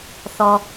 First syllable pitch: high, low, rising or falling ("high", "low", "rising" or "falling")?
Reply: low